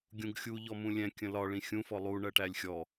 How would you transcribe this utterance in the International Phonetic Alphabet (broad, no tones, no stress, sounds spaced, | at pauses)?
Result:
ɡʲ ũ ɡ xʲ u ʎ ɔ m ũ lʲ ɛ̃ kʲ ə̃ l ɒ ɭ ĩ xʲ ũ f ɔ lˠ u ɳ ɜ ʈ æ lʲ xʲ ɔ